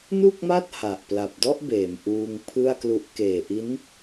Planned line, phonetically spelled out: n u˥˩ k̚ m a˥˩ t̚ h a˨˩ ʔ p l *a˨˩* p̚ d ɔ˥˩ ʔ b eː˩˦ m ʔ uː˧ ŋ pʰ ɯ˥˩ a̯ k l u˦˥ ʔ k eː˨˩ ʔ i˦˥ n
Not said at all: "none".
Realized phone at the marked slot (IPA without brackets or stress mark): a˨˩